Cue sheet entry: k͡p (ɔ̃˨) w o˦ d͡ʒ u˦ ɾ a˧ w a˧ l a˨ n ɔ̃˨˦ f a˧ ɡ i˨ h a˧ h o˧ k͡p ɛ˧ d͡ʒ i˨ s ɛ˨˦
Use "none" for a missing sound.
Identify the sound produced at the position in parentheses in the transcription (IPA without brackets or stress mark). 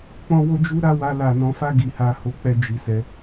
ɔ̃˦